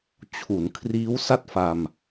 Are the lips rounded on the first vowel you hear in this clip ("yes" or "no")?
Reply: yes